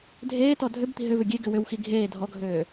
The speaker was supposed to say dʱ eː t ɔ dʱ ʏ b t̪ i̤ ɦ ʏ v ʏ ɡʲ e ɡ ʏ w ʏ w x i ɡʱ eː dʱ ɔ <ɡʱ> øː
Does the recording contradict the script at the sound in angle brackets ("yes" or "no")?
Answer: no